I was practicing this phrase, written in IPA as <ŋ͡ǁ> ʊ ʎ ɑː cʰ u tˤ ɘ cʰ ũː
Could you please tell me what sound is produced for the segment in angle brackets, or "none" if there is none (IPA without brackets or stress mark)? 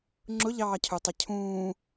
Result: ŋ͡ǁ